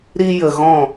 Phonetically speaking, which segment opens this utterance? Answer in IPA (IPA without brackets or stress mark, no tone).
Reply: ɾ